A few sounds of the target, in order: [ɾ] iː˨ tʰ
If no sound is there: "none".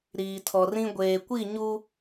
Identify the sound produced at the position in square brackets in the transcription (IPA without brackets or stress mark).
ɾ